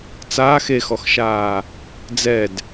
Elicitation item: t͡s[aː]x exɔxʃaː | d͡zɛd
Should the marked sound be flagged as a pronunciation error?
no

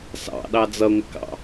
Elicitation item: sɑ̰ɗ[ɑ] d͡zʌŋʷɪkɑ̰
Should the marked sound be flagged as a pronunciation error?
no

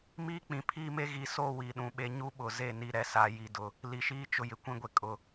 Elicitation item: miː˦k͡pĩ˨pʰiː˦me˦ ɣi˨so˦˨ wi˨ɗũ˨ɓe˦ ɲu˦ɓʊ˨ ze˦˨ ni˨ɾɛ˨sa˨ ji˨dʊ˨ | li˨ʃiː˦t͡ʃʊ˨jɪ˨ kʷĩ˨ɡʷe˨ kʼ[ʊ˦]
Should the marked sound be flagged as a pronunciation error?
yes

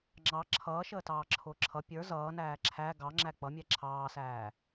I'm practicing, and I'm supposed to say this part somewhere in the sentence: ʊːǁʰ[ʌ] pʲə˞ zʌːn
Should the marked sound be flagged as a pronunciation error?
no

